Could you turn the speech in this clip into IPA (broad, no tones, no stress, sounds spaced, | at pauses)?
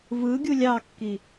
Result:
v ɯ ɡʲ u lʲ ɑ kː i